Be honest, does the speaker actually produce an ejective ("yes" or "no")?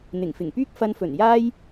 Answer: no